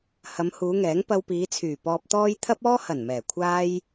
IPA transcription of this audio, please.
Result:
hɐ˨˧mhuː˨˧ŋɛː˨˥ŋ pɐ˧wpiː˨˧t͡sʰyː˨˩ pɔː˧p̚t̪ɔː˥j t̪ʰɐ˥p̚ɔː˥ hɐ˨˩nmɛː˨˩kʷʰaː˧j

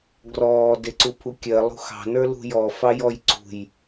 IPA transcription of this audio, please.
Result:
ɡrɔː deǀupʰukʲɜ lˠṳxɑ̤ nə˞lṳjɔ fɑjɔjǀṳj

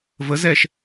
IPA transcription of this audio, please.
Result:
vəz ɛʃ

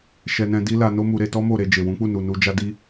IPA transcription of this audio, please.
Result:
ʃɛ˧nɛ̃˧di˦ la˧no˦mu˧ɾe˧ tɔ˦mo˦˨ɾe˧ d͡ʒe˨ wũ˨˦k͡pu˦˨ nu˨nu˧ d͡ʒa˦di˦

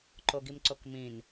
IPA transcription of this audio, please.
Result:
ǃoɡimǀokmĩn

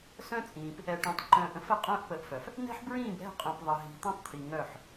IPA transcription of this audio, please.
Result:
sœ̃˦t͡sʼĩː˨p | ɛ˨ ʈœ̃˨tˤ ǃœ̃ː˨ʔə̃˦fə˦ qʼœ̃ː˦ʔpə˨˦ʔfœ˨f | nɛ̤˦ħbɹĩː˦˨bɾɛ̤˦˨qʼœ̃˨p ðˤə˨ɦi̤˨ t̪ə̃˦tˤt̪ʰi˨ŋœ˦˨ħ

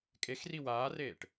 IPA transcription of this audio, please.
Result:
kʼexri waːreːʈ

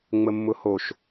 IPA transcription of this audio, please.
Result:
ŋ͡məmːʊhoʃ

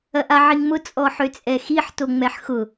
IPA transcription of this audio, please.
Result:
ɐʔaʕiŋmʊ t͡sʼɔħøt͡sʼɛxiħ toŋ͡mɛħxʊ

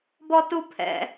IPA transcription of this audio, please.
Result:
bɔtupʰɛ̰

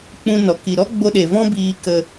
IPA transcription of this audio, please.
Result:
k͡pũ˧nɔ˨ ki˨ɾɔ˦ɡ͡bo˧ɗe˨ vɔ̃˦biː˧ kə˧

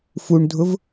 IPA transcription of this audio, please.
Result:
fuɳdʱʊv

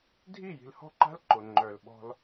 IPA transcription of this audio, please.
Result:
dʱi˦˨ji̤˨lhɔ̤˦ǃa̤˦l ǃʊ˨ ŋ͡ǃœ˨lɓɔ̤˦l

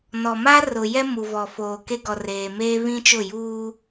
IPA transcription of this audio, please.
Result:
nɔ˨ma˦ rʊ˨jɛ˦ mu˨vɔ˨ foː˨ke˦ɡɔ˨reː˨ meː˦βĩ˦t͡ʃʊ˦˨ juː˦

